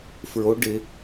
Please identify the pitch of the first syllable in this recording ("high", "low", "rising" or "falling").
rising